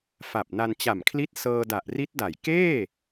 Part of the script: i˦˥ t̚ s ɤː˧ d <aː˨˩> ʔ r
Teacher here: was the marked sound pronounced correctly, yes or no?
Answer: no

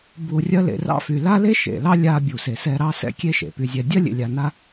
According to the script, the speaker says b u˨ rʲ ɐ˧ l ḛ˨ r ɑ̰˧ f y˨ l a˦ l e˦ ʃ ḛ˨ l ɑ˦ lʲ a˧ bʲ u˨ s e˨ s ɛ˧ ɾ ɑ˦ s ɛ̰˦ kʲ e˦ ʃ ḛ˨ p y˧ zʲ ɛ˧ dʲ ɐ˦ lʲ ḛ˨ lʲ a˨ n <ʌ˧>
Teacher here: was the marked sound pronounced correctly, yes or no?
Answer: no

